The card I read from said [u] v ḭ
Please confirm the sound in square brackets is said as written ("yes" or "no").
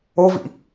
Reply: no